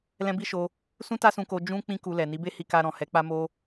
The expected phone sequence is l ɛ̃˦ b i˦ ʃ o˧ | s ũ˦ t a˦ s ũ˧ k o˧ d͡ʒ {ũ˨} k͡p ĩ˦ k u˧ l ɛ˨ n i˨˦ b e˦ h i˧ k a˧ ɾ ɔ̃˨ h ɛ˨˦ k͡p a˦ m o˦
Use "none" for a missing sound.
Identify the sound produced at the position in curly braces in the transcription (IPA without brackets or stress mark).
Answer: ũ˦